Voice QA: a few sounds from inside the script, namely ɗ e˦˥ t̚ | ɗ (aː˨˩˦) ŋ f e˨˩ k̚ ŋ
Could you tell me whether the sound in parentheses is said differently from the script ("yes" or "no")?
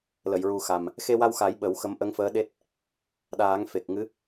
no